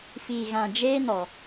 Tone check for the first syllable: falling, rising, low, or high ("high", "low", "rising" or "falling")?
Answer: low